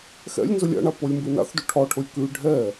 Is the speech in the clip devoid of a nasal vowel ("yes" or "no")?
yes